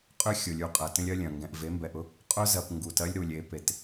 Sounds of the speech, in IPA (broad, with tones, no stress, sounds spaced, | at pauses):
qʼ ø˦ xʲ ʊ˨ lʲ u˨ qʼ ɐ˨ t ə̃˦ lʲ ɐ˦ lʲ ɐ̃˨ ŋ ɡ ɛ̃˨ ʔ v e˨˦ m b ɛ˨ ʔ ʊ˦ | qʼ ʊ˦ z ɐ˨ p ŋ ɡ u˨ t ɐ˦ lʲ ɾ u˨ lʲ e˨˦ p e˨ t